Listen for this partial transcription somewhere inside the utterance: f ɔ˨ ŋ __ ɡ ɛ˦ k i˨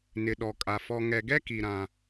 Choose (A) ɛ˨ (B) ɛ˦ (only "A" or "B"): A